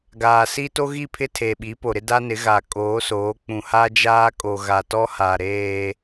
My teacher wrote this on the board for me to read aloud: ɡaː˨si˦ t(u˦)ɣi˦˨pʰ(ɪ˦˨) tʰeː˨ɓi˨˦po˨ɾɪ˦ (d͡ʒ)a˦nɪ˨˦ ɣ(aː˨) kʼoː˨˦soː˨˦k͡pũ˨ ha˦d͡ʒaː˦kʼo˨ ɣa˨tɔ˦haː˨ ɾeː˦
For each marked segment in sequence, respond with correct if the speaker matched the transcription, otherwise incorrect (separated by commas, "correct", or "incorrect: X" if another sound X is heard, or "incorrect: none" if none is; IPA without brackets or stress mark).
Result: incorrect: o˦, incorrect: ɪ˦, incorrect: d, incorrect: a˨